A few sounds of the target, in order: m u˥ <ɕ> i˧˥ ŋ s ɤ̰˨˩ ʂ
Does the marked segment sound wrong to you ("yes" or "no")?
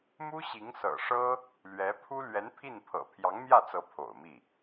no